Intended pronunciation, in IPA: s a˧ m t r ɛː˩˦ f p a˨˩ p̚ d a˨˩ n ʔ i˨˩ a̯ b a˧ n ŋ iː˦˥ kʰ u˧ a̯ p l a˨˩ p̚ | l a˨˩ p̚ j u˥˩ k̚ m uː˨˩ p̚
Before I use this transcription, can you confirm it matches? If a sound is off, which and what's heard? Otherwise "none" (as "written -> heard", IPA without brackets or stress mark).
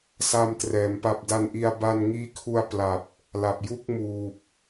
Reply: f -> m